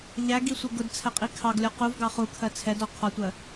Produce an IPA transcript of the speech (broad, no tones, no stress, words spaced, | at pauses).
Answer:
ʎæɡisʷɪ ɡʊdt͡sʰɛqʼi kʰɑɡlʲɔ quvɡɑ χukʰɜ t͡sʰɛdɔ qʰɒtʷɜ